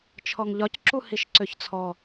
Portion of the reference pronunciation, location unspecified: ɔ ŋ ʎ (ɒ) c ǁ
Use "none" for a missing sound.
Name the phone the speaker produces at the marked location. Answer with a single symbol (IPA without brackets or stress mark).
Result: ɒ